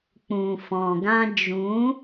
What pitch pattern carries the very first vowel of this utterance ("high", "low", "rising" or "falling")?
low